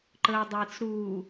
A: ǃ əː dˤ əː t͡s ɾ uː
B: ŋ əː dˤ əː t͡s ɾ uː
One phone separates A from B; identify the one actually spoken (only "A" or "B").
A